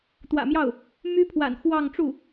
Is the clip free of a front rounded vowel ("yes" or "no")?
no